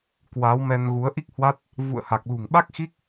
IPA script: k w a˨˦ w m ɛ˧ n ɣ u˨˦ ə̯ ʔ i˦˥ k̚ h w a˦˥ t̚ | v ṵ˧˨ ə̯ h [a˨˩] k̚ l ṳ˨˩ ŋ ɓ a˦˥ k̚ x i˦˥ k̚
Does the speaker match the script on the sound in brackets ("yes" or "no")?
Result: yes